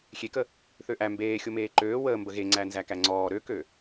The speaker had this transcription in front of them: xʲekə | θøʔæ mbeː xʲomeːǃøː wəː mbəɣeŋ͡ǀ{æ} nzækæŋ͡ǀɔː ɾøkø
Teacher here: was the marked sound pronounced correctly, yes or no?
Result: yes